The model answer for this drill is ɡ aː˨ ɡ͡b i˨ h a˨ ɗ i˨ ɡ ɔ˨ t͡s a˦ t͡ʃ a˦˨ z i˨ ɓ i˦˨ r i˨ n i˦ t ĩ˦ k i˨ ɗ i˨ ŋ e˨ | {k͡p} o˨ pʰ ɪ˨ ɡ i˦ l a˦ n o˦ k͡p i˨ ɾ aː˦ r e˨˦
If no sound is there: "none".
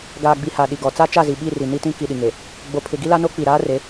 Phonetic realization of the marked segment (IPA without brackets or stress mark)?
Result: ɡ͡b